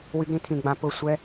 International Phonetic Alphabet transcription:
w y˦ ɡ ɾ ĩ˦ t̪ʰ ĩ˧ ɡ͡b ã˧ p ʊ˦˨ sʷ ɛ˦

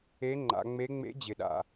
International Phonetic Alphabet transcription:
e˧˥ ŋ͡ǃ a̰˩˧ ŋ͡m e˧˥ ŋ͡m ḛ˧˥ d͡ʑ ɪ˩ ɗ a̰˩

